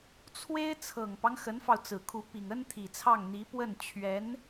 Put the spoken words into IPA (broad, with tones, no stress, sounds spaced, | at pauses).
t͡sʰ w e˥ ɪ̯ t͡sʰ ɤ˨˩ ŋ p ɑ˦ ŋ x ə˧˥ n f ɑ˧ ʊ̯ t͡s ɹ̩˨˩ kʰ u˧˥ p i˨˩ ŋ ə˥ n t̪ʰ i˨˩ t͡sʰ ɑ˥˩ ŋ n̪ i˧˥ p w ə˥˩ n t͡ɕʰ ɥ ɛ˧˥ n